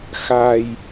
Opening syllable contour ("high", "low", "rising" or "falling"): low